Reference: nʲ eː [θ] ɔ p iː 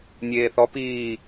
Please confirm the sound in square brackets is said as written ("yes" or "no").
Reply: yes